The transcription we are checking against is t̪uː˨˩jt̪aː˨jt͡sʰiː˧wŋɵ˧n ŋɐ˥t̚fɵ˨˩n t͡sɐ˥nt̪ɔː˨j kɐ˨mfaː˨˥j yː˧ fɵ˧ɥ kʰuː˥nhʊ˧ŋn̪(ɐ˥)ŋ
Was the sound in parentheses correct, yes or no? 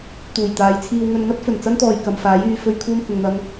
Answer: yes